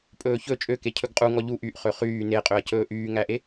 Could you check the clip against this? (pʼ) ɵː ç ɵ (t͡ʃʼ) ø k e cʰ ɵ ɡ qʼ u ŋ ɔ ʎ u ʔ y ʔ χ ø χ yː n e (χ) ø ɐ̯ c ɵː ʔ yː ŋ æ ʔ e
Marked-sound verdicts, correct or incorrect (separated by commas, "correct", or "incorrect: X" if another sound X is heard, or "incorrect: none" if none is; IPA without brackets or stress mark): correct, correct, incorrect: qʼ